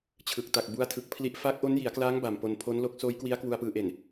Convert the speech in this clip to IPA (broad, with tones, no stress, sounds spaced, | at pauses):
t͡ɕʰ ɯ˨˩ k̚ t a˨˩ k̚ b u˦˥ a̯ tʰ ɯ˨˩ k̚ pʰ l i˥˩ ʔ f aː˦˥ k̚ ʔ o˦˥ n j i˩˦ a̯ k l aː˦˥ ŋ b a˨˩ m p o˧ n pʰ o˦˥ n l o˦˥ k̚ s oː˦˥ j k w i˦˥ a̯ k w u˧ a̯ p ɯː˧ ʔ e˨˩ n